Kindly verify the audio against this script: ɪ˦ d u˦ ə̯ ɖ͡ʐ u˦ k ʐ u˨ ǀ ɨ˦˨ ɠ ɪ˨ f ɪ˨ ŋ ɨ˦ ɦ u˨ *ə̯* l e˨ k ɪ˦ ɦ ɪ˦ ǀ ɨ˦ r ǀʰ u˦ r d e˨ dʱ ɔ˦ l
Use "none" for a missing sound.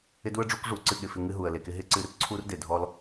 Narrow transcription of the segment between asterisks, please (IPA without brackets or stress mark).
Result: ə̯